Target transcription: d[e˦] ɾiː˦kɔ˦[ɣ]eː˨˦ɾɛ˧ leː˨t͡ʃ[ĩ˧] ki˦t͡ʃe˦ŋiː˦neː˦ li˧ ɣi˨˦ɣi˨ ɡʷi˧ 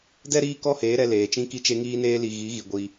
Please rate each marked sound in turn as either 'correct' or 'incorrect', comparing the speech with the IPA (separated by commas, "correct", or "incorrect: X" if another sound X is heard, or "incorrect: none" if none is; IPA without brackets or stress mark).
incorrect: ɛ˦, incorrect: h, incorrect: ĩ˦